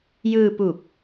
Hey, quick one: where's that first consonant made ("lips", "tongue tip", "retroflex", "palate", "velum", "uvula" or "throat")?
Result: palate